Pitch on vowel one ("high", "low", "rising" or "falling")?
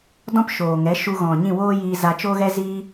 high